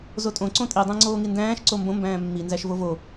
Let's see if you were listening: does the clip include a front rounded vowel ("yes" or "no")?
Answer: no